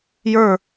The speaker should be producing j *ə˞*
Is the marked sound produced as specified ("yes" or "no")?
yes